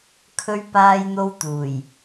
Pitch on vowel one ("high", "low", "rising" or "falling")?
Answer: high